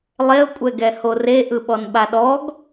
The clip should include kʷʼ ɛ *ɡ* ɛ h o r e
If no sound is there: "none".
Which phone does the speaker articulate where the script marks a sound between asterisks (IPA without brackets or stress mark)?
ɡ